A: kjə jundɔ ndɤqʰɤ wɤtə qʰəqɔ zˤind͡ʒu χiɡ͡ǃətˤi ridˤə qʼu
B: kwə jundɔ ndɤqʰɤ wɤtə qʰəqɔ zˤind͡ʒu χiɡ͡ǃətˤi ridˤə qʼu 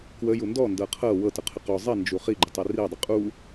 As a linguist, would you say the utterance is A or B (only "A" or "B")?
B